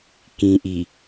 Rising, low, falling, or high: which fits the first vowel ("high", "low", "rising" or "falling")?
low